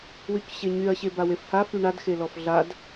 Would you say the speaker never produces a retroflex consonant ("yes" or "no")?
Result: no